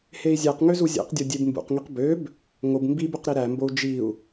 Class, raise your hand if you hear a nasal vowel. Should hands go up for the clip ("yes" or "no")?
no